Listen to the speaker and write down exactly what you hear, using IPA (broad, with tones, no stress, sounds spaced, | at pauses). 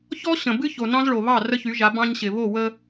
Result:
ç ɔ˦ ɕ ə̃˨ b ɨ˦ ç o˨ n ɑ̃˦ z ɭ o˨ β ɑ˦˨ r ə˦ ç y˨˦ ʒ a˨˦ b ɑ̃˦ ɲ ɕ ɪ˨ β o˦˨ w ə˦